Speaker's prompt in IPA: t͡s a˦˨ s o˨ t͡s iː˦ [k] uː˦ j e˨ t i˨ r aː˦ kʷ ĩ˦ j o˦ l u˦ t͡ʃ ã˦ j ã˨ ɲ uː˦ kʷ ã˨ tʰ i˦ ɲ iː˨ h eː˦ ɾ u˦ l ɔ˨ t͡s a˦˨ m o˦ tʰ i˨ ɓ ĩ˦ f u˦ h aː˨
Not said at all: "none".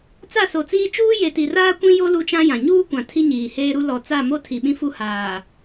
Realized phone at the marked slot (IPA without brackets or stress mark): t͡ʃ